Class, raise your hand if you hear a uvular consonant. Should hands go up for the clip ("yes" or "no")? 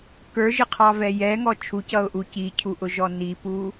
yes